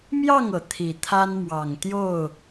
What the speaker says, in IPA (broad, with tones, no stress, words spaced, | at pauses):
mjɑ˥˨ŋɤ˩ t̪ʰi˨˩t̪ʰa˦nmwɑ˨˩ŋ t̪jo˥˨ʊ̯